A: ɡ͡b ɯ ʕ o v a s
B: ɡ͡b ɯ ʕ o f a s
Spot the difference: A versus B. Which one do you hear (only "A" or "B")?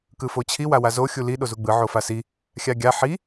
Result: B